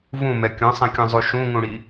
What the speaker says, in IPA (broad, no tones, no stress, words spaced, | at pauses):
vũmɛ kʲõsˤẽkʲõzˤu ʃũŋũɽi